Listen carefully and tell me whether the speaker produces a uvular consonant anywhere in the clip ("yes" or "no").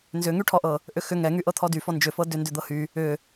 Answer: no